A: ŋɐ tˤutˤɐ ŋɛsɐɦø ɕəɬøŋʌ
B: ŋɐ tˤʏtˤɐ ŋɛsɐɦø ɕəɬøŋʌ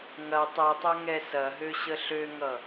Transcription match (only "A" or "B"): A